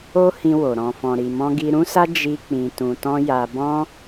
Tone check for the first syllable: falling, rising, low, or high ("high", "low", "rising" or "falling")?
high